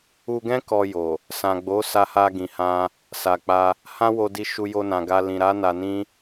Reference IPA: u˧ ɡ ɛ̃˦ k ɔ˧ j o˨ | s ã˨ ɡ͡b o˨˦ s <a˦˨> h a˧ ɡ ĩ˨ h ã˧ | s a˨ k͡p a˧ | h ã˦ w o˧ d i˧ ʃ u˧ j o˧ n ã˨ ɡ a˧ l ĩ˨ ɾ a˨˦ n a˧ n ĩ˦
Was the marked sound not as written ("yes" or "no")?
yes